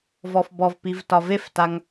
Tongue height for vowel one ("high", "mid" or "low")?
mid